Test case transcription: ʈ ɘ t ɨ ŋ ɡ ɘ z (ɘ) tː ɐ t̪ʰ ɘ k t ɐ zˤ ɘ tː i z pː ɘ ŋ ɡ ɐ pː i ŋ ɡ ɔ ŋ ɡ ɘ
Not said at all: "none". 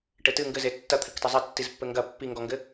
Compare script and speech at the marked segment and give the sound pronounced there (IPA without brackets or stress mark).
e